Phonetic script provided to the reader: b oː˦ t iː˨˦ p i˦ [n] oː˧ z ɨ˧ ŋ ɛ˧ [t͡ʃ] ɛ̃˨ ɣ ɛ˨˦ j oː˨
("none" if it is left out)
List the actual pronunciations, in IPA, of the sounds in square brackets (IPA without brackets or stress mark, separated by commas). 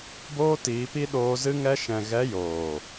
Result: ɗ, ʃ